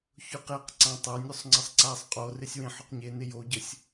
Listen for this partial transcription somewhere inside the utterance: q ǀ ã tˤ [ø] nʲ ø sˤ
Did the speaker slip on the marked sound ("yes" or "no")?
yes